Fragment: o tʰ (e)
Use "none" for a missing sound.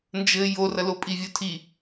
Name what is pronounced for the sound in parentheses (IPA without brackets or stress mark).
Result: i